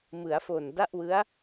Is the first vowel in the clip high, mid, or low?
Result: high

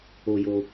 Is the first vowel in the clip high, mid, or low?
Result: mid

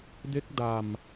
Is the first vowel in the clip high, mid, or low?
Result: mid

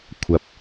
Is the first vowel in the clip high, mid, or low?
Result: low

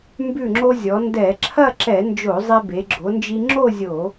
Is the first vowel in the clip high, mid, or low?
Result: high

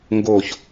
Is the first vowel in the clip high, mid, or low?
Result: mid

